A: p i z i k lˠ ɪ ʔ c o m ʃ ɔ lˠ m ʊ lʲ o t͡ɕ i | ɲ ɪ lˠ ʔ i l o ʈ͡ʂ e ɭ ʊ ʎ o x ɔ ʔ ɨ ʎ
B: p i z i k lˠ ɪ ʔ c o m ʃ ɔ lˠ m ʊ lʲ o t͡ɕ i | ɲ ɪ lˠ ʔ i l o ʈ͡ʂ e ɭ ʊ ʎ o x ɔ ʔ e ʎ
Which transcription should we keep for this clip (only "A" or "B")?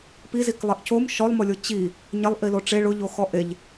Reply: B